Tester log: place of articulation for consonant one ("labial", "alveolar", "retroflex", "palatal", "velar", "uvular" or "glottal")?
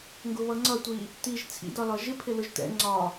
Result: velar